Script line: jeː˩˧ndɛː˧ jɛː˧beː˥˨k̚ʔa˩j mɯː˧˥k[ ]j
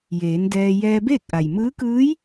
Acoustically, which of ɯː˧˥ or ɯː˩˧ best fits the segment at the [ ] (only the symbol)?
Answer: ɯː˧˥